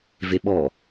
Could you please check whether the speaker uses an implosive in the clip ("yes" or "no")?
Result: yes